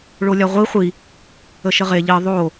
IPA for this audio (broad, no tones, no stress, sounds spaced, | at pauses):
ɭ o lʲ a ʁʷ i χʷ i | ə ʃ ə ʁ e ʎ i ðˤ o